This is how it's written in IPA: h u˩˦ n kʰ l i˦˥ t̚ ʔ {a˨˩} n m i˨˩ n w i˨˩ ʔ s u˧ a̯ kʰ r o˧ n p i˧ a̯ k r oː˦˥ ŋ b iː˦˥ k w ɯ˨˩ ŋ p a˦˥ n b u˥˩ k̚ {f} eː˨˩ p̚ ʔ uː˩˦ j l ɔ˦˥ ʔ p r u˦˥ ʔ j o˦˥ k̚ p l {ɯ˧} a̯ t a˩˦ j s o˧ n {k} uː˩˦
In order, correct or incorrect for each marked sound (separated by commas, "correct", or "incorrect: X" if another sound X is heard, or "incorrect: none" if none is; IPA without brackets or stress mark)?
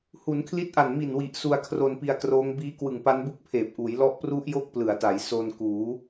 correct, incorrect: pʰ, incorrect: ɯ˩˦, correct